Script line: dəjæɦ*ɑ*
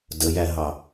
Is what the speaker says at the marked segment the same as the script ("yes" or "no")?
yes